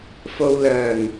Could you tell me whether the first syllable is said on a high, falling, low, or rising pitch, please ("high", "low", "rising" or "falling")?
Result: low